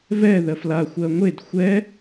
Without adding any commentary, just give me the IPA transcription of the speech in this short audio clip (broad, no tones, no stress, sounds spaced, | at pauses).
v ɛ ð ɜ f l a xʷ ɜ ŋʷ e d xʷ ɛ